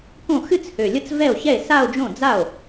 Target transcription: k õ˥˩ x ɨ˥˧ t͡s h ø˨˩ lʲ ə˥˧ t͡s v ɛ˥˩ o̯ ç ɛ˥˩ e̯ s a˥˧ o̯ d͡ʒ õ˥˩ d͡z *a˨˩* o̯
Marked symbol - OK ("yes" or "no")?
no